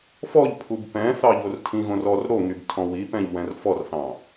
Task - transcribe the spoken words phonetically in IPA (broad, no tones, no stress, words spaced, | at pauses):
fɔʎpʰub pɛ̃θɑ ʎortʰĩɣõr ɔr ɾoŋyb tʰɔ̃wipɛ̃ʎ wɛ̃rfɔrθɑ̃